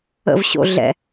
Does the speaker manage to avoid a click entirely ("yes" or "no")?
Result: yes